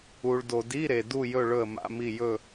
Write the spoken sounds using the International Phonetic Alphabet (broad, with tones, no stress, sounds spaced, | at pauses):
u˨ ɭ d o˨ d i˧˥˧ ɾ e˨ d u˦˨ j ɵ˦˨ ɭ ɵ˦˨ ə̯ m a̰˧˥˧ m i˦˨ j ɵ˦˨